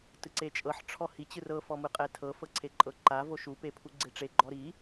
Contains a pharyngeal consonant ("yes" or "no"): yes